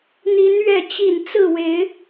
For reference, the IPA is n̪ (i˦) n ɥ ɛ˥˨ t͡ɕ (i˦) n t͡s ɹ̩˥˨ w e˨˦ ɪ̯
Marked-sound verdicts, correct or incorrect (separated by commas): incorrect, incorrect